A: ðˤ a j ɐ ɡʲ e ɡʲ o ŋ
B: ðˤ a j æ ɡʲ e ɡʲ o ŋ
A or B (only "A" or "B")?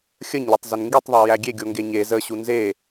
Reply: B